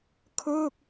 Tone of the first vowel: falling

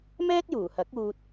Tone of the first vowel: high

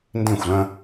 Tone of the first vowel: falling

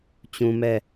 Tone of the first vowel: high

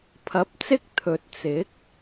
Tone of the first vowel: rising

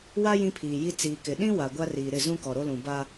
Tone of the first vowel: high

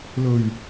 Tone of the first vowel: low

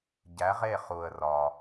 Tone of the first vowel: rising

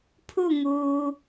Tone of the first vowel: falling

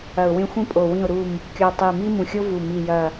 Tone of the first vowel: low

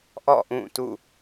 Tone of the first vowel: falling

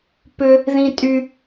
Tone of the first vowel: high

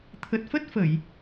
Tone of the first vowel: low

